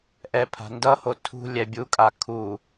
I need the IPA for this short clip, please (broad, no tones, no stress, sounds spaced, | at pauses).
ʔ ɛ pʰ a̤ n d ʌ h o tʰ ṳ lʲ ɛ bʲ u kʼ a kʰ u